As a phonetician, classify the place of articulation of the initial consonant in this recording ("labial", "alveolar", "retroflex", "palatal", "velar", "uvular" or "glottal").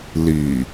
alveolar